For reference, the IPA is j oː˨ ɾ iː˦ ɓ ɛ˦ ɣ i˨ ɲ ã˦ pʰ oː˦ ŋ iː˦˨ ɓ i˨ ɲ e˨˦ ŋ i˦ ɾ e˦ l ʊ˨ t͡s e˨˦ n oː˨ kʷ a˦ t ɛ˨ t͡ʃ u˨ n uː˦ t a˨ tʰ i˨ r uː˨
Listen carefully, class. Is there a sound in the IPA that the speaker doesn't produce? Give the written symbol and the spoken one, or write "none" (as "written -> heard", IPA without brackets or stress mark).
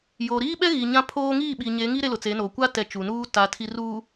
none